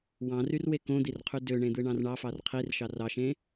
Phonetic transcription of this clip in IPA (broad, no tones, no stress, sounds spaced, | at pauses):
w ɑ̃ r y r w e k õ d̪ i r qʰ y d ø ɳ ẽ d̪ ɯ ɳ ɑ̃ r ɳ ɑ f ɑ r qʰ i r ʃ ɑ r ɑ ʃ ẽ